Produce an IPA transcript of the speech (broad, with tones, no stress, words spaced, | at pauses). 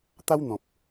t̪a˦wn̪ɔ̃˨p̚